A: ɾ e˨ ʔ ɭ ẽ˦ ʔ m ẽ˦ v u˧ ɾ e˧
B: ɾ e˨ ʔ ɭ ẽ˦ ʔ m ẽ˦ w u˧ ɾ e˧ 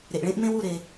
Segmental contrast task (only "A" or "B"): B